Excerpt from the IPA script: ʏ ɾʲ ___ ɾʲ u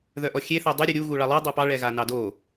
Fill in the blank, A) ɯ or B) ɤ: A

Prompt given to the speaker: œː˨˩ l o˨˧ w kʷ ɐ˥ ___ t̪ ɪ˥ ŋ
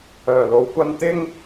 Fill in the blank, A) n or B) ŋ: A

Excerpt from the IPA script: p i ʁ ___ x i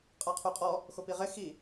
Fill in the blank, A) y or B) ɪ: B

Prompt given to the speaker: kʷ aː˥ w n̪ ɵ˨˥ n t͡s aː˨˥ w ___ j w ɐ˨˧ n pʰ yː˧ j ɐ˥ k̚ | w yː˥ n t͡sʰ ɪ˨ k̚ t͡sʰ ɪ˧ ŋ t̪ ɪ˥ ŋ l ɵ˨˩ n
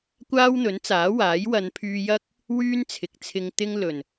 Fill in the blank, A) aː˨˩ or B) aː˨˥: B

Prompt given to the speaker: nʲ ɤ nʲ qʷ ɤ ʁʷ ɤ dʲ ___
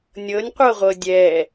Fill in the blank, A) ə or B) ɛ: B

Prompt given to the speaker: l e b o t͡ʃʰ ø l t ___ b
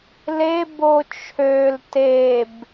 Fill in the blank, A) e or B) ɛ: A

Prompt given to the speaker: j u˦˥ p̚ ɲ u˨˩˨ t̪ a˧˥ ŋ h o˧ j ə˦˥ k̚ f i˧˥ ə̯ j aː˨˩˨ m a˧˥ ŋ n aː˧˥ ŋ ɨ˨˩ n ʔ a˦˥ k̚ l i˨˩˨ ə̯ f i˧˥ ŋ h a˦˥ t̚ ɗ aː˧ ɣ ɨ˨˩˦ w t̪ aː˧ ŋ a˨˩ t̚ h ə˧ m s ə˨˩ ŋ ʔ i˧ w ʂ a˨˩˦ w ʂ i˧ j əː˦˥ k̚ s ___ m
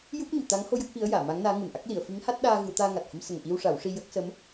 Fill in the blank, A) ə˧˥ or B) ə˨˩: A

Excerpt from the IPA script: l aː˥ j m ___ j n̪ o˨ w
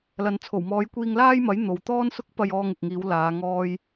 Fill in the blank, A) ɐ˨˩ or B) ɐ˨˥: B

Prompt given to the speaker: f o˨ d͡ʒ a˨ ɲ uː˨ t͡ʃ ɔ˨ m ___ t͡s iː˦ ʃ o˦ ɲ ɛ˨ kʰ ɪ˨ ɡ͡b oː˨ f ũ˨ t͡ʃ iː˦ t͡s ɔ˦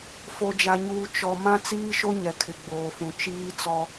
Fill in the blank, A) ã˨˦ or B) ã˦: B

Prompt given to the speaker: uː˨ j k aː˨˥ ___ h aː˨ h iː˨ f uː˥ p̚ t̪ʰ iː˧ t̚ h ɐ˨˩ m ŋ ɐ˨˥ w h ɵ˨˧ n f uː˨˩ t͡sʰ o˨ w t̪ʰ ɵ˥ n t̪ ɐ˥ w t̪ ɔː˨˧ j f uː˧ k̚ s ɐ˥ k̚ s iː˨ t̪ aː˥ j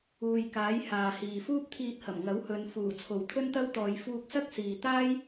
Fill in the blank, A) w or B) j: B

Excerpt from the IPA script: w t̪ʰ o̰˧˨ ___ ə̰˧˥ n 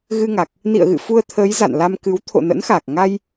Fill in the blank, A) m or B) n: B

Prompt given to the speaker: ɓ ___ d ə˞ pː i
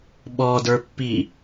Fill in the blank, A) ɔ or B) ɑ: A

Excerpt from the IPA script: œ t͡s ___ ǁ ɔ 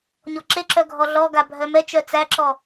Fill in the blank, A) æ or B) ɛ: A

